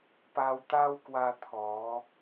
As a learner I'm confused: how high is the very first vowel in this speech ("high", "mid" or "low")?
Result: low